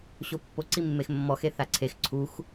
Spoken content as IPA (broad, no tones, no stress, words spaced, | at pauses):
ɕopːo ǀimːexmːɔx eθaǀʰex ǀʰux